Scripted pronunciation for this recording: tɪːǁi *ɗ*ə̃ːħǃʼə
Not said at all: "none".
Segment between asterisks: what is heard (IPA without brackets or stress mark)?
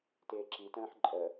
t